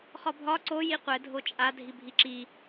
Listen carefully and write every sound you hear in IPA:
χɒbʱɒ ǀo jiqʷɛ dʱot͡ʃʼa dʱibʱiǁi

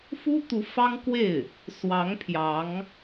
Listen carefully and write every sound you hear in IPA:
fu˥t̪u˧˥ fɑ˥ŋkwe˥˩ɪ̯ | swɑ˧˥ŋ pʰjɑ˧˥ŋ

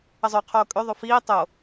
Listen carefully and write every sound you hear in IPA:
əzˤøqʰoː kʼøðˤo fiː tˤo

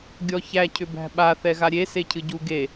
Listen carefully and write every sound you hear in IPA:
ɡʲɔçæ cʰʏbæ̤ɓa θɛɣaɾʲe secʰɨɟu ɡe

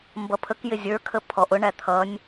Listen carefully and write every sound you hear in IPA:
mbʌpʰəkjɪ zʲə˞kʰə pʰɔʔ ʊɳæ t̪ʰʌnʲ

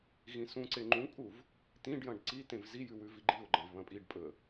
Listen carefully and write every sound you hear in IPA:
ɣĩsũǀe ŋ͡ǃũkʼuv | t̪ĩɖjɐ̃ɖ ǀit̪ẽv zijʉ wʉviɡ͡ǃiʊ̯ɡ͡ǃɐ̃v βɐ̃pʼiɖpʼɵə̯

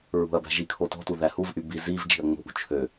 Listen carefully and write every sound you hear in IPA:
ɹṳɐ̯bæ̤ ʒikʰotɔ̤tu ðæhuvʔy bi ziv d͡ʒi̤ɐ̯ŋ͡mo̤ʔṳ t͡ʃʰø

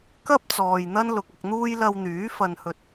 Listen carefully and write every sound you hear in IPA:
kɐ˥p̚t͡sɔː˨j n̪ɐ˥nlʊ˨k̚ɐ˧k̚n̪uː˥j lɐ˧wn̪yː˨˥ fɐ˧nhɵ˧t̚

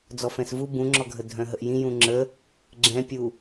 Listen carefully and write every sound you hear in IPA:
d͡zɔfɛ̃svu bũŋ͡ǁɔɡʱə dʱœ̃ɦəʔjĩ jũŋ͡ǁə | ɡ͡ǁɛ̃pʲu

